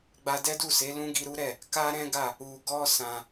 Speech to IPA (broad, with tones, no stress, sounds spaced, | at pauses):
ɡ͡b a˧ d ɛ˦ d u˦˨ s e˨˦ l ũ˦ ɡ i˧ ɾ u˦ ɾ ɛ˦˨ | k a˦ ɾ ɛ̃˦ ɡ a˦˨ | u˨ ɡ ɔ˧ s ã˧